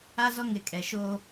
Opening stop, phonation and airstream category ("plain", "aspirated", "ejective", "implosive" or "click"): ejective